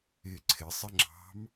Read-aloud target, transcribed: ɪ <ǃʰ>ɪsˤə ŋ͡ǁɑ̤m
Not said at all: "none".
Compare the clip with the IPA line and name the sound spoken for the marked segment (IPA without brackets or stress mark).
ǀʰ